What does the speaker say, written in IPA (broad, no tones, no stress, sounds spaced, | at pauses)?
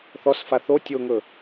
θ ɔ s f a θ o tʲ o ŋ ɵ